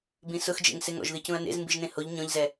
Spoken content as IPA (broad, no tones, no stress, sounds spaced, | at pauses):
b ĩ s ʊ x d͡ʒ ḛ ŋ s ɪ ŋ ɔ̰ ʒ ð i c ũ ɐ̯ n ḛ z m b i ʒ n ẽ h o ʎ ɲ ɔ̃ ʎ z ɛ